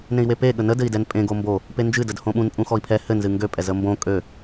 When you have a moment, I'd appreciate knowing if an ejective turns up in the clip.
yes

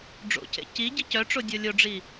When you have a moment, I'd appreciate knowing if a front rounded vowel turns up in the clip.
yes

